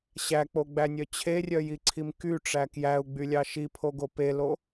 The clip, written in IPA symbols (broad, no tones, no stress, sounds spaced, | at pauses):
ɕ æ k͡p o ɡ͡b æ nʲ œ t͡ɕʰ e rʲ œ j i ǀʰ i m k y ʈ͡ʂ æ k j æ u̯ ɡ͡b y lʲ ɑ ʃ i pʰ o ɡ o p e l o